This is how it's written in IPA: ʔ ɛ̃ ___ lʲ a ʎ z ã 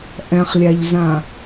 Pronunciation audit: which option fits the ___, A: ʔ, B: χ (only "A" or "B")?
B